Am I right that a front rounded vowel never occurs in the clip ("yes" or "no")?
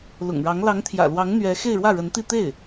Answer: yes